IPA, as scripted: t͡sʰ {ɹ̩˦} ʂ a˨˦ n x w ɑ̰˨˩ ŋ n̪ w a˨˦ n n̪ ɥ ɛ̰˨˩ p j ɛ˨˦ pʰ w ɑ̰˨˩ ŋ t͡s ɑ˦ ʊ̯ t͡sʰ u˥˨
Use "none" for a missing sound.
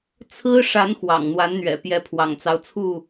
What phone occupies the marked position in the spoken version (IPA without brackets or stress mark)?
ɹ̩˦